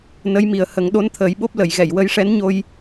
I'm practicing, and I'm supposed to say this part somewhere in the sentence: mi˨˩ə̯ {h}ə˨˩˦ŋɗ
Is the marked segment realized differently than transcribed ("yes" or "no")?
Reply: no